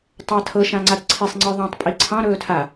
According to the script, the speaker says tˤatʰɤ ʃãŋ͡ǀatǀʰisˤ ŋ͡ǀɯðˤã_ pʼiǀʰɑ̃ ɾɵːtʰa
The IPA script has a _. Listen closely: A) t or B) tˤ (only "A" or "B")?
B